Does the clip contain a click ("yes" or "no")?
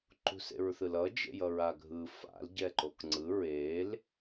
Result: yes